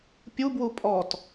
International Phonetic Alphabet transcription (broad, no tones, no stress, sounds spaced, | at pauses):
pʲ u b w u pʼ ɔ t